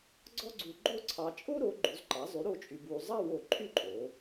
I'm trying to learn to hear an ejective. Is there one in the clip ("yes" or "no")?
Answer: yes